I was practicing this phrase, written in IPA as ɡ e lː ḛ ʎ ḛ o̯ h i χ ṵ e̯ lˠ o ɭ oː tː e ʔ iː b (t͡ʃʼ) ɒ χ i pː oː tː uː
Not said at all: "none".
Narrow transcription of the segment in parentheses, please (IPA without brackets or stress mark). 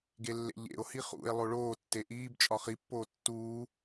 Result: t͡ʃʼ